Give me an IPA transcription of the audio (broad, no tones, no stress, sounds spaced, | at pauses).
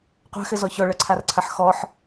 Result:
qʷ a̤ x ɘ z ɔ ç ɔ ɭ ɐ ǀʰ a r ǀʰ ɐ ħ x ɔ ħ